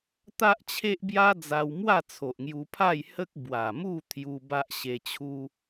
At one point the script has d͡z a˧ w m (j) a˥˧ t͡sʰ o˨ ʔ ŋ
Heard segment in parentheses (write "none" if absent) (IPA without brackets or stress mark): w